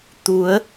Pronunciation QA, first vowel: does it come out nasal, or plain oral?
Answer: oral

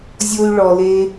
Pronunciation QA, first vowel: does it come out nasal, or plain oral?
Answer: oral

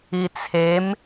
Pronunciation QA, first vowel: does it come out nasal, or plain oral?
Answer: oral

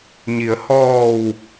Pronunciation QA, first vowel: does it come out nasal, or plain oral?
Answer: oral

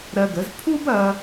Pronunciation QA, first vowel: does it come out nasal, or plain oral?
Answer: oral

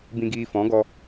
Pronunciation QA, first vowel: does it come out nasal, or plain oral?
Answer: nasal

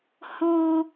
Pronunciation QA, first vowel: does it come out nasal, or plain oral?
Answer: nasal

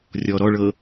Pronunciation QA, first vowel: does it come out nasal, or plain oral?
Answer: oral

